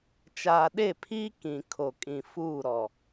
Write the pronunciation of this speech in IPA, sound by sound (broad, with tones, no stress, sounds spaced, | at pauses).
t͡ʃ aː˨ ɗ e˦˨ pʰ iː˦ k ĩ˨ kʰ o˨ kʼ ĩ˨ f uː˦˨ ɾ ɔ˨